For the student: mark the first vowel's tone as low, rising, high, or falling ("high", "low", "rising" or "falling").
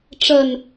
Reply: low